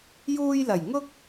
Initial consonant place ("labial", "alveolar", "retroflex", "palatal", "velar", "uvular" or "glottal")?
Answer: palatal